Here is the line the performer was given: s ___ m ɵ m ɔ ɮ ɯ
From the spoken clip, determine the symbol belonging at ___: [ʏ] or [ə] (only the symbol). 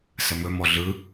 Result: ə